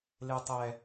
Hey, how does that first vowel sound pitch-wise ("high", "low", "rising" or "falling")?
low